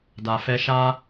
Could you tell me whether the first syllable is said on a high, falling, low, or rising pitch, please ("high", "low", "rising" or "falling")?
low